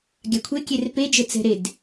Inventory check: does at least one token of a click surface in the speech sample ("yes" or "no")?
no